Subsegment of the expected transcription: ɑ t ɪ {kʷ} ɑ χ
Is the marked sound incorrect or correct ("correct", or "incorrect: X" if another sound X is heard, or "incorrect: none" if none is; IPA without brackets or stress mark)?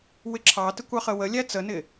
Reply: correct